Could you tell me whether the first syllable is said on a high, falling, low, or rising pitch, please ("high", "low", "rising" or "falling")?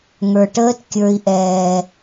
low